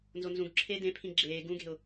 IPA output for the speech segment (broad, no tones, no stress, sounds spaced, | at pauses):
n z o n z ũ ɡ ǁʰ eː d ẽ pʰ ĩ ɡ͡ǁ eː ɡ ũ ɡ e̤ ʊ̯